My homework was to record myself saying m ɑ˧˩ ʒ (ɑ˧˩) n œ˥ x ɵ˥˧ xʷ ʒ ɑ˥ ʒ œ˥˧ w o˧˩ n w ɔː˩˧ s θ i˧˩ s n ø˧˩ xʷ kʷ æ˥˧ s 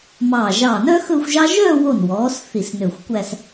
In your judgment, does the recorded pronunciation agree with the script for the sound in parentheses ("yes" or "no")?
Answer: yes